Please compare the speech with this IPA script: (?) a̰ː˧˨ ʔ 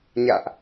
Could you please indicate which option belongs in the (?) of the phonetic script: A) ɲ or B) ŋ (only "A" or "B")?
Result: A